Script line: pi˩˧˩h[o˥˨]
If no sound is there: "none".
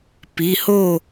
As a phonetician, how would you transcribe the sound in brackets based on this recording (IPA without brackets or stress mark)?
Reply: o˥˨